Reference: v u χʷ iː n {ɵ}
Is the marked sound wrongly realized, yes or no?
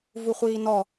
yes